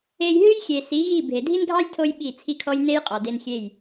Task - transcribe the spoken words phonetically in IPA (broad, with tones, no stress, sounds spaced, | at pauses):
e˧ j ɦ ɨ˦ j xʲ e˨ s i˨˦ ɣ i˦˨ bʱ e˨ dʱ i˦ n ɡʱ ɑ˦ j tʰ o˦ j ɓ i˦˨ t͡sʰ i˦ kʰ ɔ˦ j n e˦ j qʼ ɔ˨ d e˧ n xʲ e˦˨ j